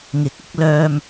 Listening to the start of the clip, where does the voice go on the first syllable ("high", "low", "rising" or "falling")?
rising